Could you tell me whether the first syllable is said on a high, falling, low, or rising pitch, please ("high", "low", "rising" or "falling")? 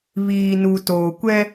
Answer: low